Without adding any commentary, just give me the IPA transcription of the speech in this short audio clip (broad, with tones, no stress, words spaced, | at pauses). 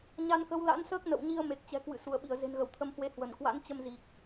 ɲa˧nkə˨˦w la̰˧˥nsəː˦˥k̚nə̰˧˨wɲi˧ə̯ me˨˩k̚t͡ɕɛ̤˨˩kwɨ̰˧˨ su˧˩ə̯ɓi˧˩ə̯ ze̤˨˩nɣə˧˩w t̪ʰə˧mhwe˧ hwə˧˩nkwa̰˧˥n t͡ɕə˧mzi˨˩k̚